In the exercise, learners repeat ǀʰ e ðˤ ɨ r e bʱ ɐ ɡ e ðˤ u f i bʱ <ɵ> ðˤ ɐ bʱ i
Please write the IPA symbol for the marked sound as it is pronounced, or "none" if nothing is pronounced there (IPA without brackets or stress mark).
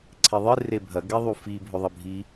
ɵ